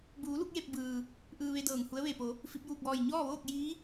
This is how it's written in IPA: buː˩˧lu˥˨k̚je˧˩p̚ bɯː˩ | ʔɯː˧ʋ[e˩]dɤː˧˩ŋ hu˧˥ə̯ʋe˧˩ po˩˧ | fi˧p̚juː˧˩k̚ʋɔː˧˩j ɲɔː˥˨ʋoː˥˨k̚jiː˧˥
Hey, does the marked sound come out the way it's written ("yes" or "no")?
no